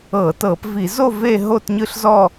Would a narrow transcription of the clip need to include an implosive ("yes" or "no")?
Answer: no